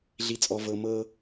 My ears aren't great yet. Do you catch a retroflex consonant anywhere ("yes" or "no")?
no